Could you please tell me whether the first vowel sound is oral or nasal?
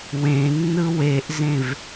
nasal